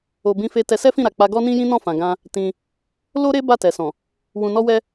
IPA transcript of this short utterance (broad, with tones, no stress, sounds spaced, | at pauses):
o˧ b ĩ˧ f e˧ t ɛ˧ s ɛ˦ f ĩ˦˨ ɾ a˨ k͡p a˧ ɡ ɔ˦ n ĩ˦ j ĩ˦ n ɔ̃˦˨ f ã˨ ɡ ã˧ | t ĩ˧ | l o˦ ɾ e˦ b a˦˨ t ɛ˨ s ɔ̃˨ | w ũ˧ n ɔ˦ w ɛ˦